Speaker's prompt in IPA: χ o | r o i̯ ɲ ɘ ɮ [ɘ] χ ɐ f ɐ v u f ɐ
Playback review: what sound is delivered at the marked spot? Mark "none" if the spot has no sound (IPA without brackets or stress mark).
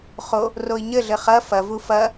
ɘ